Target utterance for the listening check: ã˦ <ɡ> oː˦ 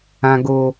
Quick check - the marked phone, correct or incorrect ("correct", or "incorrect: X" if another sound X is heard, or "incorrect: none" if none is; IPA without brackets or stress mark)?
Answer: correct